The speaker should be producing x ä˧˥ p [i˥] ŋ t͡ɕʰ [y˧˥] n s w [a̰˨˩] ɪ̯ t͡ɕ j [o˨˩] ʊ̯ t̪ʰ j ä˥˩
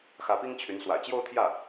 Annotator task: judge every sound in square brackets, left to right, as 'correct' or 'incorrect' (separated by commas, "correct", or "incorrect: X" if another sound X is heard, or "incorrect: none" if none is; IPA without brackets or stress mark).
correct, correct, correct, incorrect: o˥˧